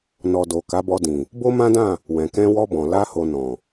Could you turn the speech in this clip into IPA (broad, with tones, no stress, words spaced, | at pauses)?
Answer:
nɔ˨do˨ ka˨˦bɔ˧dĩ˨ | bo˦mã˦dã˦˨ | wɛ̃˨kɛ̃˧wɔ˧bɔ̃˨ la˧ ho˨ nɔ̃˨